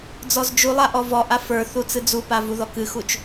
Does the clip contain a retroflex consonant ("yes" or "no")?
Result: no